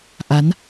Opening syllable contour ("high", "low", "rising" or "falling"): rising